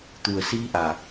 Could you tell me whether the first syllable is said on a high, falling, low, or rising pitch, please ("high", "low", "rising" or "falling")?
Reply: low